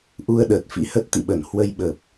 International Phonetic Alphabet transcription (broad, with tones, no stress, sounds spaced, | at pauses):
ʔ u˧ ə̯ ɗ əː˨˩ t̚ f ḭ˧˥ h ə˦˥ t̚ t̪ ḭ˧˨ ɓ ə˧˩ n h w ə˧ j ɓ ə˨˩ p̚